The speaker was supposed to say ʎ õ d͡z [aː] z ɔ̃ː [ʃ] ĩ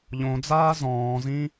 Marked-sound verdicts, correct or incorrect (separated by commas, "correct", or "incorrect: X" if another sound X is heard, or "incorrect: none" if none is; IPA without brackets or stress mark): correct, incorrect: z